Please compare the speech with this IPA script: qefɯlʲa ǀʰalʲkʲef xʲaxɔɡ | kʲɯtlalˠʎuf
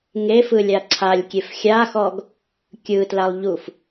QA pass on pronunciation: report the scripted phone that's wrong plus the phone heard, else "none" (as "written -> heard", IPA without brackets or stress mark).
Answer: q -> ŋ